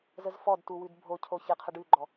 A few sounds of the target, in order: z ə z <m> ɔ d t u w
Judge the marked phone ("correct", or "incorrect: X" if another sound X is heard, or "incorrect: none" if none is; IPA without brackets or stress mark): incorrect: f